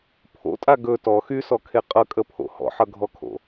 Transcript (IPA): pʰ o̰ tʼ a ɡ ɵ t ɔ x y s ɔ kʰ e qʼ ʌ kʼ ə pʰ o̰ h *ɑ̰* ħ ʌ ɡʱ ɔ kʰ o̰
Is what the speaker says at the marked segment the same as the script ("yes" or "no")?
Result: no